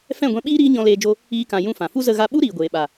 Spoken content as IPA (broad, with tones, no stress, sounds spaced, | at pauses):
f ɛ̃˦˨ ɡʷ ɛ̃˧ ɓ iː˦ ɾ iː˦ ɲ ɔ̃˧ l eː˧ d͡ʒ o˧ | iː˦ k ã˧ j ũ˧ f ã˨ f u˦ z ə˧ ɣ a˧ ɓ u˦ ɾ iː˨ ɡʷ eː˨ ɓ a˨